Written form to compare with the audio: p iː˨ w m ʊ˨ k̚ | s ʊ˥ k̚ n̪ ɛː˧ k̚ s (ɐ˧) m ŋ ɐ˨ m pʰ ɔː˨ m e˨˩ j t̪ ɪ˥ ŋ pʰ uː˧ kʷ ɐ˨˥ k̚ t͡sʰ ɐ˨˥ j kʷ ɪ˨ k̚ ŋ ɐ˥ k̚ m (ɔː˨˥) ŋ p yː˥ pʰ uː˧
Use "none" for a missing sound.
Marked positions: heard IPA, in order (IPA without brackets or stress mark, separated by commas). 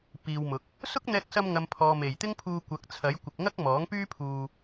ɐ˧, ɔː˨˥